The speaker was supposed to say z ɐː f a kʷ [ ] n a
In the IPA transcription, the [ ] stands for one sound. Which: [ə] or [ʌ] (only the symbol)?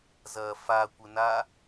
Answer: ə